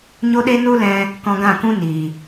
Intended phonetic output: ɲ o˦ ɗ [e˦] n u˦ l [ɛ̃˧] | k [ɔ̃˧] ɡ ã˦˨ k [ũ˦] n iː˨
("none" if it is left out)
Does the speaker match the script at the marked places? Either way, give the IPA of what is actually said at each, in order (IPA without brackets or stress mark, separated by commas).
e˦, ɛ̃˧, ɔ̃˧, ũ˦